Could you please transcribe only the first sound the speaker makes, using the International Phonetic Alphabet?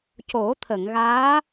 c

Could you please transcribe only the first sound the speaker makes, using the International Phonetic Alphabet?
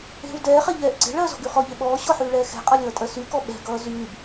e̤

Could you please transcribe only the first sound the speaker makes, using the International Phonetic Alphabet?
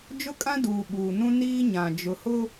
d͡ʒ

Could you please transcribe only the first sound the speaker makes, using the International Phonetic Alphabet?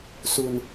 s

